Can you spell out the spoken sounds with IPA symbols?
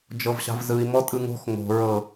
d͡ʒ ɤ v ɕ a̤ v z ɯ i̯ m ɔ tʼ ɯ ŋ o̤ x ŋ o̤ ɹ ɤ

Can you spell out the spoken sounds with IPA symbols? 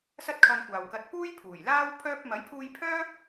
s ɐ˥ t̚ kʰ ɐ˧ n kʷ aː˨ w k ɐ˧ t̚ p uː˥ j pʰ uː˨˩ j l aː˥ w pʰ œː˧ p̚ m ɐ˨˥ j pʰ uː˧ j pʰ œː˥

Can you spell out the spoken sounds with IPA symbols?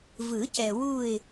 v ɯ˨˩˦ c ɛ˨ w u˦˨ ɪ̯

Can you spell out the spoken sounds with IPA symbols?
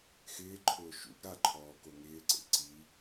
x ɪː ǃʰ ʊː ʃ ṵ ɡ ɾ a ǃʰ ɔː k o ŋ ɪː ǀ ḛ ǀ i

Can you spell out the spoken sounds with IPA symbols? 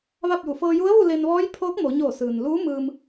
ʋ a˥˨ p̚ j u˧˩ f ɤː˧ j u˧˥ ə̯ ʋ u˥˨ l e˧ n ʋ ɔː˧˥ j pʰ oː˧˥ k̚ m o˩˧ ɲ oː˧˩ s ɯː˩ n l uː˧˥ m ɯː˧ m

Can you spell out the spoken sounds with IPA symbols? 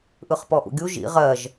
ʔ ɯ χ p ɔ ʔ ṵ ɡʲ u ʒ ḭ ʁ ɜ ʒ

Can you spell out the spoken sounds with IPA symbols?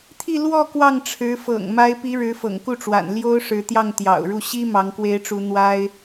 t̪ʰ i˥˧ l w ɔ˥˧ k w ɑ˥˩ ŋ ʈ͡ʂʰ ɻ̩˧˥ f ɤ̰˨˩ ŋ m a˧˥ ɪ̯ p i˧˥ ɻ ɻ̩˧˥ f ɤ̰˨˩ ŋ k u˥˩ ʈ͡ʂ w a̰˨˩ n l j o˥ ʊ̯ ʂ ɻ̩˧˥ t̪ j ɑ˥˩ ŋ t̪ j ɑ̰˨˩ ʊ̯ ɻ u˥˩ ɕ i˥ m ɑ˧˥ ŋ k w e˧˥ ɪ̯ ʈ͡ʂ u˧˥ n̪ w a˥ ɪ̯

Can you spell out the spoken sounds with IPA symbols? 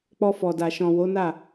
k͡p ɔ˧ f ɔ˨ d a˨ ʃ ɔ̃˨ w o˨˦ n a˦˨

